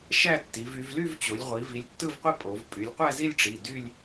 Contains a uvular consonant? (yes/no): yes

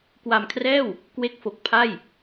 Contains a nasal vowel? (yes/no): no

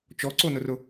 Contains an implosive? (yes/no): no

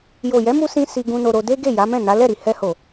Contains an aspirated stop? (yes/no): no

